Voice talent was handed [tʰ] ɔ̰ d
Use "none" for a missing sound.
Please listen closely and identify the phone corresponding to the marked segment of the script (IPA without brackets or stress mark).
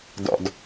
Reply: d